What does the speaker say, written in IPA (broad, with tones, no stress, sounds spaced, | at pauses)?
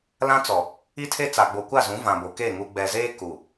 l ã˦ t͡s ɔ˨ | i˦ tʰ e˦ t͡s a˨ ɡ͡b o˨ kʷ a˦˨ z ũ˨˦ v ã˨ b o˨ k e˦˨ ŋ u˨ ɡ͡b ɛ˨ z eː˦ k u˨